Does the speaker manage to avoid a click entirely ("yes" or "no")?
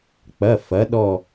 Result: yes